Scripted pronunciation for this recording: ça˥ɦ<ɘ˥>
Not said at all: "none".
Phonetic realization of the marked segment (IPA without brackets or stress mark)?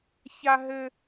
ɘ˥